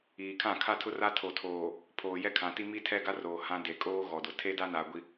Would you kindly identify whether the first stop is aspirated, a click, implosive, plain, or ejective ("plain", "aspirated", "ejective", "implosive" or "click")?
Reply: aspirated